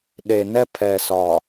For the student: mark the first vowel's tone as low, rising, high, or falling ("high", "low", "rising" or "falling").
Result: low